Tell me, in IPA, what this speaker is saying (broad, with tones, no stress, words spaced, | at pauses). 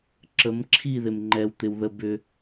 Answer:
ǁə˨˦mǁʰi˦˨ðɪ˨m ŋ͡ǃɛ˨wt̪ɪ˨w ðə˦bʏ˦